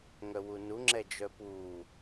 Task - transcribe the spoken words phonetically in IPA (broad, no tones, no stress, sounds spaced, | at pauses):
ŋ œ w u n u ŋ͡ǁ ɛ d͡ʒ œ p u